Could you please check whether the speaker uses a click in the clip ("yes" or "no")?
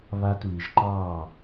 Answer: yes